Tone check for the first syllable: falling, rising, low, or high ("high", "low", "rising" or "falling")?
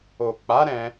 low